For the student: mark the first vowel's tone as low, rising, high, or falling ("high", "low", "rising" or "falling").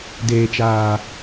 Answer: low